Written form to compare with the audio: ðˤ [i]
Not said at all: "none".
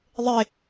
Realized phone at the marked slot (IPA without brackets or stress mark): e